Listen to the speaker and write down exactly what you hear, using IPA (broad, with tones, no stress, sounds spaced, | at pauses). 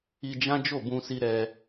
i˧ d͡ʒ ã˦ d͡ʒ o˦˨ b ũ˧ s i˧ ɾ ɛ˧